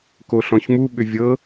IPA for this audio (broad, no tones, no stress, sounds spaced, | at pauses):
k o ɬ ɔ̃ ç m u ɓ ʏ vʲ ɤ